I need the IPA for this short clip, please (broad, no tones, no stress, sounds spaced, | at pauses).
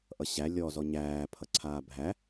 ʔ ʌ ɕ æ lʲ ɔ z ɔ ɲ æː pʰ ʌ ǀʰ aː bʱ æ